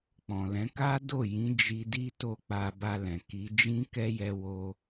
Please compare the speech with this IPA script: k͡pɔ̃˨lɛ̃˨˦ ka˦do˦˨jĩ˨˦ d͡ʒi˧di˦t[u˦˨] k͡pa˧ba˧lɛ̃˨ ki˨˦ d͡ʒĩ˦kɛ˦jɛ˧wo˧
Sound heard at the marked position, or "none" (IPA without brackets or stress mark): o˦˨